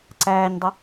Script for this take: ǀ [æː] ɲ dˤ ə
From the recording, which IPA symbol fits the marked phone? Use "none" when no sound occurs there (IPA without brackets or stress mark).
æː